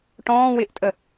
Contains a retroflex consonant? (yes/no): yes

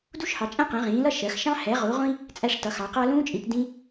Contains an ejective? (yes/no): yes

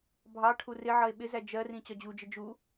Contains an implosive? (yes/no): yes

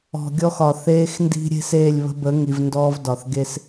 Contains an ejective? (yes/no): no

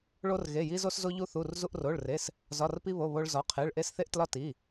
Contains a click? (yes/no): no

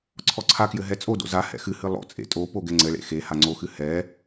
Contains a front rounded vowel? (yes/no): no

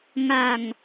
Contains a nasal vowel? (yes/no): no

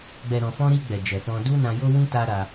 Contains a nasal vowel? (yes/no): yes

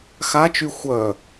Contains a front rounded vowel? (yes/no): yes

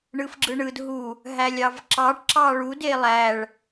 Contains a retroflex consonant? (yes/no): yes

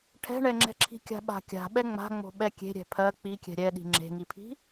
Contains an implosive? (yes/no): yes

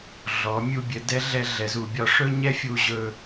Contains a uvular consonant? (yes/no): no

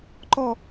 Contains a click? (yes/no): yes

